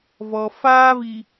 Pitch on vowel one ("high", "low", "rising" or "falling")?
low